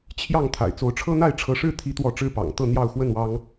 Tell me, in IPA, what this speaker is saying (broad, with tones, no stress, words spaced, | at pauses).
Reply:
t͡ɕʰjɑ˥˨ŋ t̪ʰa̰˨˩ɪ̯t͡so˨˦ʊ̯ʈ͡ʂʰɤ˦n̪a˥˨ɪ̯ ʈ͡ʂʰɤ˨˦ʂɻ̩˥˨ t̪ʰi˦t̪wɔ˥˨ ʈ͡ʂɻ̩˥˨pɑ̰˨˩ŋt̪ɤ˥˨n̪jɑ˥˨ʊ̯ xwə˥˨nwɑ˦ŋ